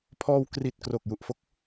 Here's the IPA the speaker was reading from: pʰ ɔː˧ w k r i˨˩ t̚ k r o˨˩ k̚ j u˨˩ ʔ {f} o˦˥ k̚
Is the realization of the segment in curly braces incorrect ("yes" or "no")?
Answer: no